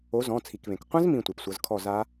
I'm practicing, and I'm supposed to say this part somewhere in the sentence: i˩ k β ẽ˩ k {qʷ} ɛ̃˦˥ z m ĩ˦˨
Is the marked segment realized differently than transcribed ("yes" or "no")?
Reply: no